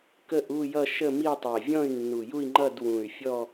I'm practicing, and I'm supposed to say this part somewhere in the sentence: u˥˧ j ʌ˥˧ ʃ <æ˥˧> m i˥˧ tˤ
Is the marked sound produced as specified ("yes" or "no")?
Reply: no